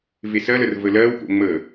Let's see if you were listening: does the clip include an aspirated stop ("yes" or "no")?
no